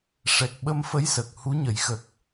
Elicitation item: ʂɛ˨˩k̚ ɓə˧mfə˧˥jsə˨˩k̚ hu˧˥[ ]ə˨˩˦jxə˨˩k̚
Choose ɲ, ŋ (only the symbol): ɲ